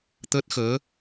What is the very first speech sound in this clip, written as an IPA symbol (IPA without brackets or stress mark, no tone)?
t̪